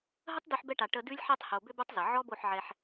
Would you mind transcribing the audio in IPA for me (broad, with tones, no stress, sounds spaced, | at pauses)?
ɦ ə˦ tˤ d ʉ˧ ħ b ɛ˧ ʈ a˨ ʈ ə˧ d ʉ˧ lʲ ħ e˧ tˤ h o˨ b ʏ˧ b o˦ tˤ z ə˨ ʕ ɔ˦ b o˦˨ ħ ʕ ɛ˧ ħ